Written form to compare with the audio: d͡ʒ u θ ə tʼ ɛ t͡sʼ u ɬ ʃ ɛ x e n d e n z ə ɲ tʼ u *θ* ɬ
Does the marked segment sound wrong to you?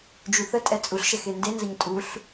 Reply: yes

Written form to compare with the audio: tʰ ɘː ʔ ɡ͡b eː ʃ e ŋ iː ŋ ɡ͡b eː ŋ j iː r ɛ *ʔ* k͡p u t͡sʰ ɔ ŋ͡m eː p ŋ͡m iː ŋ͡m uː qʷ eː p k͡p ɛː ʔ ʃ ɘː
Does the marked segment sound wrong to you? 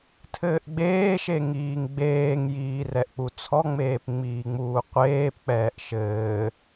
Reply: no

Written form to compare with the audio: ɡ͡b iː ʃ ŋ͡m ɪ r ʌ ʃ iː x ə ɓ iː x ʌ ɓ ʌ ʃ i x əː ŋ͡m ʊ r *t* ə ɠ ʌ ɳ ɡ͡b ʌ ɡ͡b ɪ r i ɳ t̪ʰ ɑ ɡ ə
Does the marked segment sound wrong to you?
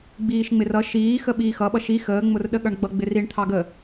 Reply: yes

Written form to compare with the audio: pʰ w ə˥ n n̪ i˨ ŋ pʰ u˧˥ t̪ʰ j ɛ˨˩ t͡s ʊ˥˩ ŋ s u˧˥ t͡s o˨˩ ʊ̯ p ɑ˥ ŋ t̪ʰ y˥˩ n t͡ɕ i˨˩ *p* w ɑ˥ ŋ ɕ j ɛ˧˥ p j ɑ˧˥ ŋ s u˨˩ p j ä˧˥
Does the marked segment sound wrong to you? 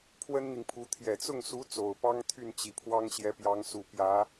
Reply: yes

